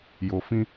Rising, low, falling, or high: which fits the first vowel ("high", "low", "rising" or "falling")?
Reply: low